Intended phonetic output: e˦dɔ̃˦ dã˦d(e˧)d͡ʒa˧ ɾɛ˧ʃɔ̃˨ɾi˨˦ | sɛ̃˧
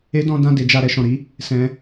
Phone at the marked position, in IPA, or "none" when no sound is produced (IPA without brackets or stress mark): e˧